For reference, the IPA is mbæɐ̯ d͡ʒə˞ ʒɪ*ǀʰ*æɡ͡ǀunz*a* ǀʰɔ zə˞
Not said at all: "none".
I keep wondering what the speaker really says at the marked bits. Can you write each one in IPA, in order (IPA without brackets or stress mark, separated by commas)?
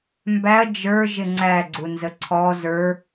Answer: ŋ͡ǀ, ə